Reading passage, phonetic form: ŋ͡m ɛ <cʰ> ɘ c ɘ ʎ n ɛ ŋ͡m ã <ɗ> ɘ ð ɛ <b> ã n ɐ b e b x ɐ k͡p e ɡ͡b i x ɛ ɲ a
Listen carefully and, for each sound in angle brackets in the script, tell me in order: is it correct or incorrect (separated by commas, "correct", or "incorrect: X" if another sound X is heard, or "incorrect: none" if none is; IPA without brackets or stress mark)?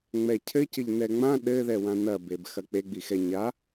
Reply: correct, correct, incorrect: w